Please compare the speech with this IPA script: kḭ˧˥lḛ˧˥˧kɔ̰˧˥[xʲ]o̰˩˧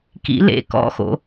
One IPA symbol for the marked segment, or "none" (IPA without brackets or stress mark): x